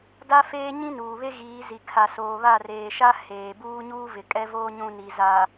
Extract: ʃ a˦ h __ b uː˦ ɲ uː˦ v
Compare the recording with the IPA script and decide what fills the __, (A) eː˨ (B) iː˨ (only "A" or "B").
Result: A